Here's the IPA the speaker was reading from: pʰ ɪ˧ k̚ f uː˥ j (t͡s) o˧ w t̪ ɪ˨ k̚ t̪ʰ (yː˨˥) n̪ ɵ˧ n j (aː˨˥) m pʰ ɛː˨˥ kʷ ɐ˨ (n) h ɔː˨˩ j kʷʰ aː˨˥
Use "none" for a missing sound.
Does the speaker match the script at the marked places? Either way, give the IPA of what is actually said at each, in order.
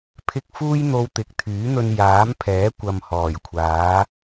n̪, yː˨˥, aː˨˥, m

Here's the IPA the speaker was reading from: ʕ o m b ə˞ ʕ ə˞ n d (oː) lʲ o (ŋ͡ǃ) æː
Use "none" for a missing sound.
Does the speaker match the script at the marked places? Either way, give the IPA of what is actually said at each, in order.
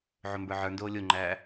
oː, ŋ͡ǃ

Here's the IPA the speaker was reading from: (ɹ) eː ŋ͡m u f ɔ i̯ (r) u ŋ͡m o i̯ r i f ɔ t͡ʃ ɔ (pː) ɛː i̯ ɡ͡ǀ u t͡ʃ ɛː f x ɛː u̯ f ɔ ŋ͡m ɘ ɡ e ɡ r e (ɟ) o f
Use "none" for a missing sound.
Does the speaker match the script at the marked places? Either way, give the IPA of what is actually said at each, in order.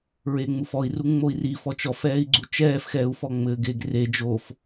ɹ, r, f, d͡ʒ

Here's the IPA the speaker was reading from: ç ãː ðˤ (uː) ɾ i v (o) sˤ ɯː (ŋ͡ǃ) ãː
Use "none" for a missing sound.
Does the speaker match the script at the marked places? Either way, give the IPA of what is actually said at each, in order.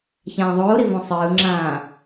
oː, õ, ŋ͡ǁ

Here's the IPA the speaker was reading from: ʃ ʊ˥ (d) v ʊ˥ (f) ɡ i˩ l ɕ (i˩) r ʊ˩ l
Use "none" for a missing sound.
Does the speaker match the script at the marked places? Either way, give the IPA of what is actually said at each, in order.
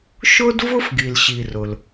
d, f, i˩

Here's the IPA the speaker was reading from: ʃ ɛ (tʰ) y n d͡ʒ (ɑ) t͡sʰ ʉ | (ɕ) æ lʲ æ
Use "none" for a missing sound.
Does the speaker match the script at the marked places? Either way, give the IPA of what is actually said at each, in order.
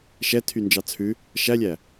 tʰ, ɑ, ʃ

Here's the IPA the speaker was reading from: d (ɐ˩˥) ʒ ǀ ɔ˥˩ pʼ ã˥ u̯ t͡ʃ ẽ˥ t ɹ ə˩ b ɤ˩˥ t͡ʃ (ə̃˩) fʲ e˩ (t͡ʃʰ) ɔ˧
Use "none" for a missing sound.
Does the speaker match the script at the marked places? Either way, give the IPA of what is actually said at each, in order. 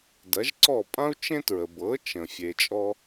ɐ˩˥, ə̃˩, t͡ʃʼ

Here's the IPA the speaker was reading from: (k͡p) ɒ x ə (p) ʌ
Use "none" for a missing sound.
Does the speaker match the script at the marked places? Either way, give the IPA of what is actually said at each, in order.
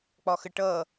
k͡p, ʈ

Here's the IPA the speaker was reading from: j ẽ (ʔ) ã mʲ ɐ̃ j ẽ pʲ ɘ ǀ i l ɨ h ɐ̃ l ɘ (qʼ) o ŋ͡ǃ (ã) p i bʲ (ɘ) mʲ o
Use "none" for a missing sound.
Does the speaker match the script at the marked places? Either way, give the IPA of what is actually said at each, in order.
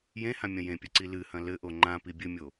h, ʔ, ã, ɘ

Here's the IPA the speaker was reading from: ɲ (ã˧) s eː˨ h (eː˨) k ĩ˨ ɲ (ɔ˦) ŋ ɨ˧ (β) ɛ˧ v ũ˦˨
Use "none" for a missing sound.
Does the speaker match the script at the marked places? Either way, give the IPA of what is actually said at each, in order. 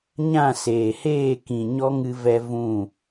ã˦˨, eː˦˨, ɔ˦, v

